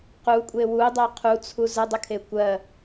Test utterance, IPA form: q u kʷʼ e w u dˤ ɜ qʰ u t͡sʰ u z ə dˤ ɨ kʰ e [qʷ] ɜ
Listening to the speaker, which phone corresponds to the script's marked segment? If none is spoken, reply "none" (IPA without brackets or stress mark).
kʷ